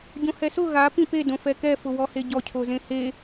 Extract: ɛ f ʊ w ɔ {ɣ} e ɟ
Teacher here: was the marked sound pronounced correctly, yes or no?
no